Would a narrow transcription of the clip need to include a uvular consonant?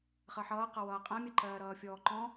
yes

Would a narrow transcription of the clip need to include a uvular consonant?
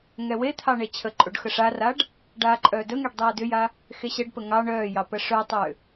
no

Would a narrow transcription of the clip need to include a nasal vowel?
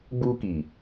no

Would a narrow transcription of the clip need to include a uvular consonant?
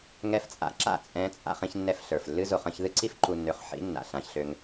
yes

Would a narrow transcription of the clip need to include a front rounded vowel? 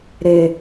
no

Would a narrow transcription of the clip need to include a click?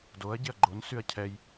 yes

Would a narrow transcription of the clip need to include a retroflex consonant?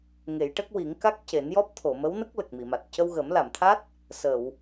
yes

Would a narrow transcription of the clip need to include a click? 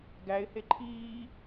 yes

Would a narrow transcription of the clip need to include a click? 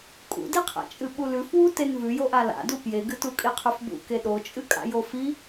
no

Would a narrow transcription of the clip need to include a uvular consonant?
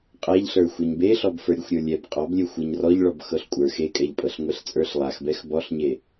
yes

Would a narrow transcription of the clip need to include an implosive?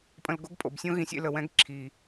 no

